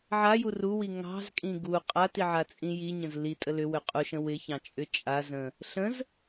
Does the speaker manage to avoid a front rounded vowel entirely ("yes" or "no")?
no